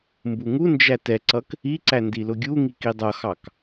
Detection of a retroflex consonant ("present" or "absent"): absent